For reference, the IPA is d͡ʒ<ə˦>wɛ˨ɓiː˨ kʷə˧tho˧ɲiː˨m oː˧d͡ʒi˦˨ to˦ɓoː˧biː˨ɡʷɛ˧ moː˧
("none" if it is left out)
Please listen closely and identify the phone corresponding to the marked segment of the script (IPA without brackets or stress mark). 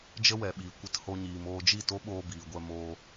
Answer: ə˦